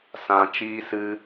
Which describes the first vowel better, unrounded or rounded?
unrounded